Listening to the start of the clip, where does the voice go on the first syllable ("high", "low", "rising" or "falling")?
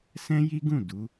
high